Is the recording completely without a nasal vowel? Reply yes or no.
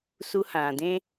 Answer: no